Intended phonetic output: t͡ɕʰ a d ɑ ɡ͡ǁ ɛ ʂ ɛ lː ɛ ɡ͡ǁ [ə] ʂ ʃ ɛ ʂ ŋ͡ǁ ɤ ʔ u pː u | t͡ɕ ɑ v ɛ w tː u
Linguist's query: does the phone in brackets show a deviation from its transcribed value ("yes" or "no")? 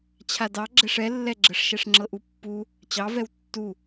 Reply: no